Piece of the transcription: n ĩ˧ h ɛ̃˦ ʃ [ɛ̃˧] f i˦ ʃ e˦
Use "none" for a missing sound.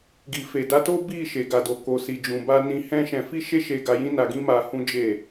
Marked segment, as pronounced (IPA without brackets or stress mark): ɛ̃˧